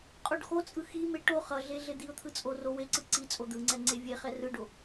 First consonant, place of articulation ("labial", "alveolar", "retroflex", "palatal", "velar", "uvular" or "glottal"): uvular